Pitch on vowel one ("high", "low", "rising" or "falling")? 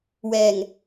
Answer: low